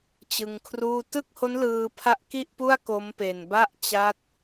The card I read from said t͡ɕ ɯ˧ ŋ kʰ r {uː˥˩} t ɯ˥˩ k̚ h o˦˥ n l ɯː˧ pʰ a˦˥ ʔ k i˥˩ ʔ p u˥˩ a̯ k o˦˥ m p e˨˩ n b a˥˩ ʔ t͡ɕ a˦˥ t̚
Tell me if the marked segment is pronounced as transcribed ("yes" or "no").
yes